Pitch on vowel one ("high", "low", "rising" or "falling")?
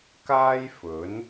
high